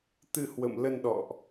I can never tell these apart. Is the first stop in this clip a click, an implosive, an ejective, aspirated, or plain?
plain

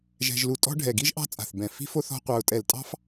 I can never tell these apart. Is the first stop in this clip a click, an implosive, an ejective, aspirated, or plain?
ejective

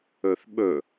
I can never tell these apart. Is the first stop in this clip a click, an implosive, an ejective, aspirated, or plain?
implosive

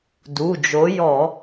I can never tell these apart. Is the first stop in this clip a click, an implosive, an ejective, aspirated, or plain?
plain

